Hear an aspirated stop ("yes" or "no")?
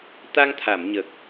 yes